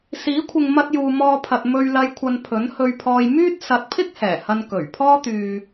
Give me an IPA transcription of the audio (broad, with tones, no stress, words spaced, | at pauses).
siː˨˥kʷʰɪ˨ŋmɐ˧t̚juː˨ mɔː˧pʰɐ˨t̚ mɵ˧ɥlɐ˧jkʷʰɐ˨n pʰɵ˨˥nhɵ˧ɥpʰɔː˧j myː˥t̚ sɐ˨˥t̚pʰɪ˥k̚ hɛː˨˩hɐ˧n kɵ˨˩ɥpʰɔː˥t̪yː˧